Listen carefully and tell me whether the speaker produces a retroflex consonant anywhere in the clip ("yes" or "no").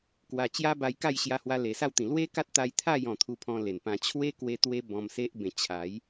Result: no